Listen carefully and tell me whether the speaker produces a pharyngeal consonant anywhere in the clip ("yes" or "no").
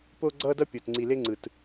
no